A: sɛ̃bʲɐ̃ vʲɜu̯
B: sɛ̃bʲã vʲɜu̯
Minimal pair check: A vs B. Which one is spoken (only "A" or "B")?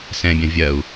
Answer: A